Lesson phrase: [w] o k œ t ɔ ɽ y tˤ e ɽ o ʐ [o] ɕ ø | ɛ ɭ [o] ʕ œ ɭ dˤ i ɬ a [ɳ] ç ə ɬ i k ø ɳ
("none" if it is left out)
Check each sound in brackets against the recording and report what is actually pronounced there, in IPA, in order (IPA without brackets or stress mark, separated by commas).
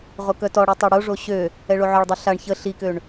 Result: ʁ, o, o, ɳ